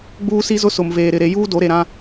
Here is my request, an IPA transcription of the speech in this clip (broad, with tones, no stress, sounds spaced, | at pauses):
ɡ͡b uː˦ s i˦ z ʊ˦ s ʊ˨ m v eː˨ ɾ ɪ˨ ɾ e˨˦ j uː˦ d o˨˦ ɾ e˨ ɾ ã˦